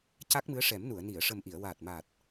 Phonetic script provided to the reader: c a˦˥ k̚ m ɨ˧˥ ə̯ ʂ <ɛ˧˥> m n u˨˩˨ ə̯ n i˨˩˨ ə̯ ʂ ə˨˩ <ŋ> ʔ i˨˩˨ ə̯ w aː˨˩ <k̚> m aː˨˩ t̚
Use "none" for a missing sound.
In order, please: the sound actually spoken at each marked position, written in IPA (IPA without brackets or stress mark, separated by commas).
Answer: ɛ˨˩˦, m, t̚